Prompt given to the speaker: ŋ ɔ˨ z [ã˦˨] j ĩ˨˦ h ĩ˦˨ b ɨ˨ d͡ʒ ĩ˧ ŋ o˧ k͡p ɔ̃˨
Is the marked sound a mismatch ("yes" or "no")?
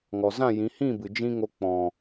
no